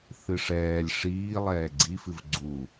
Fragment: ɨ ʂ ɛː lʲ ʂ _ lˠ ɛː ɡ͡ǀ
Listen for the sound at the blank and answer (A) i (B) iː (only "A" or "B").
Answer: B